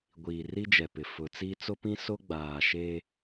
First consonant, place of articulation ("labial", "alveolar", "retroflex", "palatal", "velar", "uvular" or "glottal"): velar